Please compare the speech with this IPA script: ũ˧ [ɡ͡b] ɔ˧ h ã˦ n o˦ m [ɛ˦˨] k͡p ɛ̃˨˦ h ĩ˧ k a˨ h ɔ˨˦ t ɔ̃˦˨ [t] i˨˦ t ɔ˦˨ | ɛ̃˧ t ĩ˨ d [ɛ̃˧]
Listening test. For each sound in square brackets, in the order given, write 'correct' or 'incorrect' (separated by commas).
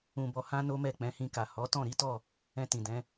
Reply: incorrect, correct, incorrect, incorrect